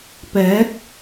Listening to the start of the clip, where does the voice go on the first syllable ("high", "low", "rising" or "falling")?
rising